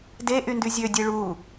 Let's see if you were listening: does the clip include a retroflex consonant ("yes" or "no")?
yes